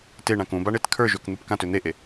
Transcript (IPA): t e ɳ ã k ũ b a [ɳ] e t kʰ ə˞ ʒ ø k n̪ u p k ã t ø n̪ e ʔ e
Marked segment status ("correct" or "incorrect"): correct